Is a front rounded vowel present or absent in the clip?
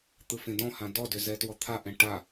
present